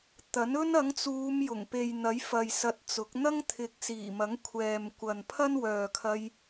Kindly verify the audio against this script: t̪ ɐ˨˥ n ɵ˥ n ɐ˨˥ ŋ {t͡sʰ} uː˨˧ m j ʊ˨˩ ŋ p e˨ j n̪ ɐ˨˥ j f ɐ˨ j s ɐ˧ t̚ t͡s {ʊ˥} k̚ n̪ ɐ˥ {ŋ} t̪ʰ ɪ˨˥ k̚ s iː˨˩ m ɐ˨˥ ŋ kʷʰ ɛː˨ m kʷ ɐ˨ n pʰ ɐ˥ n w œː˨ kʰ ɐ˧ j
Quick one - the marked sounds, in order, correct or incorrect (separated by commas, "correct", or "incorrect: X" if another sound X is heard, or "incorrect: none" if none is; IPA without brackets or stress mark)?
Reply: incorrect: t͡s, incorrect: ʊ˨˥, correct